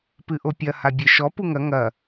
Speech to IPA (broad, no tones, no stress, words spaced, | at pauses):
pɨʔopʲɐ habʲeʃɔ puŋɐ ŋɐ